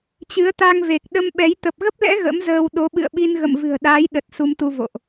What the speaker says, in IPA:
t͡ɕ ɨ˨˦ ə̯ t̪ a˧ ŋ v e˨˩ k̚ ɗ ə˧ m ɓ ɛ˨˦ j t̪ ə˨˩ p̚ ɣ ə˦˥ p̚ l ɛ̰˧˥ ɣ ə̰˧˥ m z əː˧ w ɗ o˨˦ ɓ ɨ̰˧˨ ə̯ ɓ i˧ n ɣ ə̰˧˨ m v ɨ̤˨˩ ə̯ ɗ aː˨˦ j ɗ ə˨˩ t̚ s u˧ m t̪ u˧ v o̰˧˨ ʔ

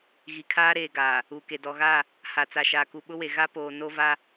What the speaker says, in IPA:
ɣ i˨ kʰ aː˦ ɾ eː˨ ɡ aː˨ | uː˨ k e˨ d ɔ˨ ɣ a˦˨ | h a˨ t͡s a˨ ʃ aː˨ k u˨ ɓ ʊ˦ w e˨ ɣ a˦ p oː˨ n o˦ v a˦

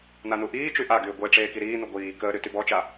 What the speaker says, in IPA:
n a n u ʔ iː t͡ʃ y ʔ a ɡ yː ɡʷ e ʈ͡ʂ eː k i ɾ iː n u ɡʷ iː k əː ɾ y t y b ɔ t͡ʃ a

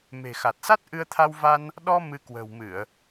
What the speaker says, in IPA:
m e̤˨˩ x a˨˩ t̚ s a˦˥ t̚ ʔ ɨ˧ ə̯ t̪ʰ a˧ w v a˧ n | ɗ ɔ˧ m ɨ˧ k w ə̤ː˨˩ w m ɨ˧˩˨ ə̯

